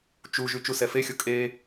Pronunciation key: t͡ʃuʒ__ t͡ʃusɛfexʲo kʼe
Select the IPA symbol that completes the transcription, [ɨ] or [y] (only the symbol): y